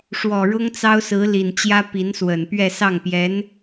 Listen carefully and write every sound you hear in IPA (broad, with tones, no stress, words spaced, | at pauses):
ʂwɔ˨˩ɻʊ˥ŋt͡sɑ˥ʊ̯ sɹ̩˧˥li˨˩nt͡ɕjä˥pi˧˥n swə˨˩n pɥɛ˥˧sɑ˥˩ŋpjɛ˧˥n